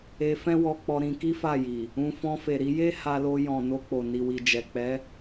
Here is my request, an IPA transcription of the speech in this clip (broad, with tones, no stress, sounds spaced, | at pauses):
e˧ f ɛ̃˦ w ɔ˧ k͡p ɔ˧ ɾ ĩ˧ k i˦ f a˦˨ j i˨ | ũ˧ f ɔ̃˧ f e˨ ɾ i˧ j e˦ h a˧ l o˧ j ɔ̃˨ n o˧ k͡p o˨ n i˨ w i˨ d͡ʒ ɛ˨ k͡p ɛ˨˦